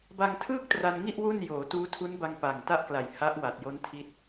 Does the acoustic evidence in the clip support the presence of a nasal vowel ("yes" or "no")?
no